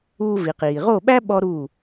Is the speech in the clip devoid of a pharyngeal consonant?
yes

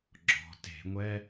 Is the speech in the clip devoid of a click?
no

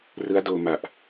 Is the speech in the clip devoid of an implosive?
yes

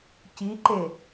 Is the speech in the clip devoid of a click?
no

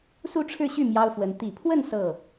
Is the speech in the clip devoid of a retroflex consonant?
no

